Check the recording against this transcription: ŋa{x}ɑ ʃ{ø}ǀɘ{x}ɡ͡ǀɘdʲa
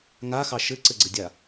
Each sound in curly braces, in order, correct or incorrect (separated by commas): correct, incorrect, incorrect